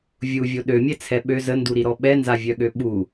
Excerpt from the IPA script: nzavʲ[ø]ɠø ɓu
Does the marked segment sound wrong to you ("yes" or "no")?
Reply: yes